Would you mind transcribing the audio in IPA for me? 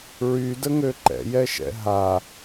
ɹ y d ə ŋ ø ǃ ɛ̰ j ɛ ʃ ɛ̰ ɦ a

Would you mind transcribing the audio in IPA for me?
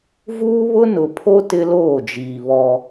v uː˦ β ʊ˦ n ʊ˨ pʰ o˦ t ɪ˦ l oː˦˨ d͡ʒ iː˨ β ɔ˦

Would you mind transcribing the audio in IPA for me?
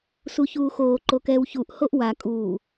s u ç uː x oː ǃ o k ɛː w ç u ʔ h o ʔ w a kʼ uː

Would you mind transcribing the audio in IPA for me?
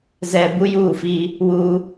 z ɛ˨ b u˦ j uː˦˨ f iː˦ | w uː˦

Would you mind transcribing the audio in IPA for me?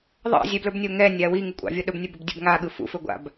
ðˤ ɑ̰ zʲ ɛ b l ɵ b nʲ o ŋ ɛ nʲ a w i ŋ u kʷʼ ɑ̰ vʲ o ɗ ɵ b nʲ ɵ b ɵ b dʲ ɵ b ŋ a ɠ ɯ f ṵ f ɵ ɡʷ a̰ b

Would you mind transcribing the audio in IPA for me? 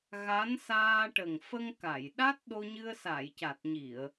ɣ a˧˥ n s aː˧ ʈ ə˨˩ ŋ f ə˧ ŋ k a˨˩˨ j ɗ a˦˥ t̚ ɗ o˧ ɲ ɨ˧ ə̯ s a˨˩˨ j c a˨˩ t̚ ɲ i˨˩˨ ə̯

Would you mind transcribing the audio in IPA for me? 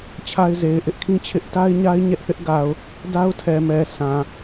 t͡ɕʰ a˦ ɪ̯ z e˨ ɪ̯ ʔ ɪ˦ ʔ kʰ ĩ˦ t͡ɕʰ ɪ˦ ʔ t a˦ ɪ̯ ɲ a˦ ɪ̯ ɲ ɛ˦ ʔ θ ɪ˦ ʔ ɡ a˨ ʊ̯ | d a˦ ʊ̯ tʰ ɛ˨ m ɛ˨ s ã˨

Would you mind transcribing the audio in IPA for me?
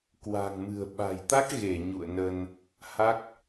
k w a̤˨˩ ŋ m ɨ̤˨˩ ə̯ ɓ a̤˨˩ j t̪ a˦˥ k̚ ɣ e˧˩ ɲ ṵ˧˨ ə̯ n ə˧ n | h a˦˥ k̚

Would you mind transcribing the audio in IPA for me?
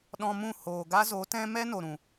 ɗ ɔ̃˧ m ũ˦˨ h oː˨ ɡ a˦ z o˨˦ t ɛ̃˦ m ɛ˦ n o˨ ɾ ũ˨

